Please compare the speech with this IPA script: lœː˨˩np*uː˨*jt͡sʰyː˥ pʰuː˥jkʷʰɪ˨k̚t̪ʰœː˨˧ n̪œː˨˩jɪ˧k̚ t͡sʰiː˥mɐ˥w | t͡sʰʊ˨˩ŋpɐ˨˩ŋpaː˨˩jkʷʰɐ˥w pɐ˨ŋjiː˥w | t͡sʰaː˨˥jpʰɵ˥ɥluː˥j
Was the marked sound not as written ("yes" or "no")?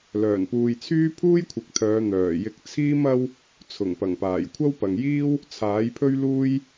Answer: no